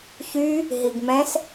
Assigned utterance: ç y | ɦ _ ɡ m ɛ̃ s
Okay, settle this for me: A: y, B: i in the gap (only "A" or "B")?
B